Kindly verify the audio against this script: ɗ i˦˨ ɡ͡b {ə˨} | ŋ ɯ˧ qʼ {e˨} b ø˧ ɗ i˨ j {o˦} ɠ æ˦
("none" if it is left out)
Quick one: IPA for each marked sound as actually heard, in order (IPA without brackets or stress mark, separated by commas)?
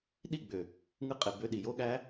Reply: ø˨, e˨, o˦